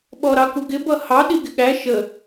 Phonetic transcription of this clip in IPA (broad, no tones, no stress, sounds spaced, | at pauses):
ɓ ɔ ɾ ɑ k u ɡ ɪ b ʌ h ɑ ɗ i ɡ ɪ ɠ æ ʃ ə